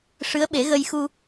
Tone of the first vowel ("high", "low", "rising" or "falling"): rising